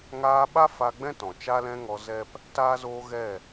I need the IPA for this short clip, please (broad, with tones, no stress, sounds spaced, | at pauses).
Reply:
ŋ aː˧ ɓ a˦ f a˧ ɡ͡b ɛ̃˦ t ɔ̃˨ t͡ʃ a˦ l ɛ̃˦ ŋ ɔ˧ z ɛ˦ p | t aː˧ z oː˧ ɣ ɛ˦˨